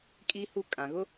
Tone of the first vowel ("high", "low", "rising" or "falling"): high